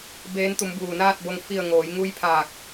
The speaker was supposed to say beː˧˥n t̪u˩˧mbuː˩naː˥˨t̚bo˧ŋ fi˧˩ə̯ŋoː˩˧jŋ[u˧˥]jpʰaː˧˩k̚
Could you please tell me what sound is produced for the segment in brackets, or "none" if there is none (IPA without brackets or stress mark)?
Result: u˧˥